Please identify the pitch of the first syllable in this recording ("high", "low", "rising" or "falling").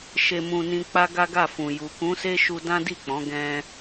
low